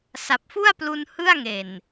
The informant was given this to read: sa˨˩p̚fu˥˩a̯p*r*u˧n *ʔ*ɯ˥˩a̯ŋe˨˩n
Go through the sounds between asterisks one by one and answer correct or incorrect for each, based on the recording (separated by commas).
incorrect, incorrect